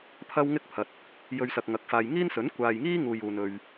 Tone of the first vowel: high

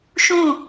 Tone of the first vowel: falling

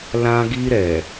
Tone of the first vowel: high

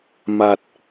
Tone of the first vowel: low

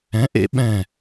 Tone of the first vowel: rising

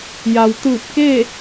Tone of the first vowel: low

